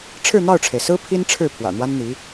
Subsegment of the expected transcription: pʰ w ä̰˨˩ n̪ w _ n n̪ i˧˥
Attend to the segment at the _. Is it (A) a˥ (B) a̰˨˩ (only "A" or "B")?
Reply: A